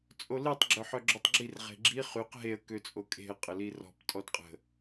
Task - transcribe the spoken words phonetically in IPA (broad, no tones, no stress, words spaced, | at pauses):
t͡sʼolitˤ ɡ͡ǁœħœɡ͡ǁotˤɡ͡ǁir ʁe̤ɡ͡ǁi χyq ɦeə̯ køt͡sʼokʼe̤ə̯ qʼəlirɔ̤p tʼɔdqʼə̤